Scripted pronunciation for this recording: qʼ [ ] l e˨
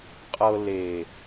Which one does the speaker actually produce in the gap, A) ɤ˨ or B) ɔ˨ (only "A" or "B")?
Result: A